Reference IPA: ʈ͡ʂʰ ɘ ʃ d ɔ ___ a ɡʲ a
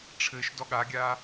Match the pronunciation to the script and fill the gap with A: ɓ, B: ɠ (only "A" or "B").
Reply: B